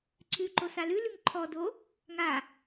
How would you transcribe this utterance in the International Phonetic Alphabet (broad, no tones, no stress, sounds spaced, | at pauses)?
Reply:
ǀʰ ʉ ǃ o s a l ʉ l ʉ ŋ ǃʰ ɔ d o | ŋ a